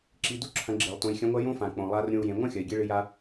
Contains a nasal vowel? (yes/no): yes